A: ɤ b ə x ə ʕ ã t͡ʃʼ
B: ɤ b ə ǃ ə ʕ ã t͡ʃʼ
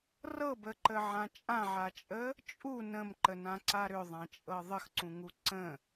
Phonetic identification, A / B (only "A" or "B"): B